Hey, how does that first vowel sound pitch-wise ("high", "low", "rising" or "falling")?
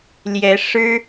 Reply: rising